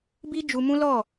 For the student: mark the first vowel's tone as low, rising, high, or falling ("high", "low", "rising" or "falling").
high